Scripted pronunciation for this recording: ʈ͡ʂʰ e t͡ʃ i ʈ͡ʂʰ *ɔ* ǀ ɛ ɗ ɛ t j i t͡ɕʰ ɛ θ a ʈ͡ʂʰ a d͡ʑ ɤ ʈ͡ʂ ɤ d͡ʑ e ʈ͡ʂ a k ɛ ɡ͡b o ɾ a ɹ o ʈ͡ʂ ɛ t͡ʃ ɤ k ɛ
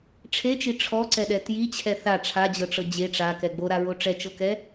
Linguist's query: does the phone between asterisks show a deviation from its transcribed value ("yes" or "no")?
no